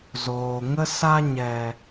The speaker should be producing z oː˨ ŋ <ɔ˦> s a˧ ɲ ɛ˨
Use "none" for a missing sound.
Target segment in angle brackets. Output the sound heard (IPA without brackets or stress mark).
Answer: ə˦